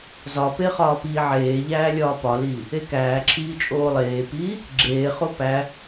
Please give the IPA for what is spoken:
z ɒ p e χ ɒː p iː ʕ eː ʎ æː lʲ ɒː p ɒ l iː | e k æː ǁʰ iː t͡ʃʼ oː lˠ eː p iː | ɡ͡ǁ eː χ o p æ

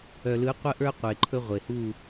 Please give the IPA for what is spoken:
œ˨ l ɯ˨˦ qʷ ə˦ ʔ ə˞˦ qʷ e˨ ǃʰ ɵ˦ ʁʷ e˨ h u˦˨

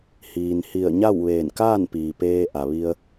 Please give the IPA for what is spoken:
h iː˩ n h i˧˩ ə̯ ɲ a˥˨ w ʋ eː˧˩ n k aː˥˨ n p iː˩ p eː˧ ʔ a˩ ʋ i˧ ə̯

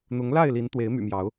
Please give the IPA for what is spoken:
n̪ ʊ˨˦ ŋ l a˥˨ ɪ̯ l i˨˦ n t̪ w e˨˦ ɪ̯ m y̰˨˩ m j ɑ˨˦ ʊ̯

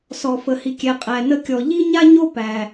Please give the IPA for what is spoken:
s ɔ˧ f ə˧ h i˧ kʲ ɛ˧ qʼ æ˧ n ə˦ kʲ ɔ˧ ʎ i˦ ɲ a˦ ɲ o˦ p æ˧

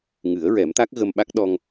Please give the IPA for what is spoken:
ŋ ɨ˨˩˦ ə̯ ɹ ɛ˨˩˦ m t̪ a˦˥ k̚ ɣ ə˧ m ɓ a˦˥ k̚ ɗ ɔ˧ ŋ

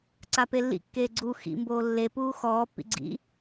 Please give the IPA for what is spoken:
ǀ a p e lː ḭ kː eː ɡ͡ǀ u x ḭ m b oː lː e p uː x ɔː pː ḭ ɡ͡ǀ ḭ

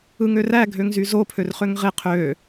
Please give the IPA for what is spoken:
ɯ ŋ ø r æ ɡʱ ø ŋ z y z o pʰ ø r χ ø ŋ ʁ e qʰ ø

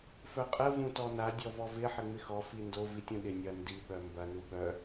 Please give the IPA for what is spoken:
f œ qʼ ə v ũ t ɔ n a dʲ ɔ v ɔ v ɪ ħ ɪ ŋ͡m ɪ x ɔ f i n d o v i tʲ ũ ɗ ɪ nʲ ɐ n d i ɓ œ m b ɐ n u ɓ œ

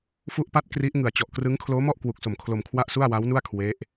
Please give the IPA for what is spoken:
f u˦˥ ʔ p a˦˥ t̚ k r i˦˥ ʔ ŋ ɯ˨˩ a̯ t͡ɕ ɔ˨˩ ʔ k r ɯ˦˥ ŋ kʰ l oː˦˥ m ɔ˥˩ ʔ k w u˨˩ k̚ s o˨˩ m kʰ l o˧ m kʰ w a˥˩ ʔ s u˥˩ a̯ w a˦˥ w n u˥˩ a̯ kʰ w e˦˥ ʔ

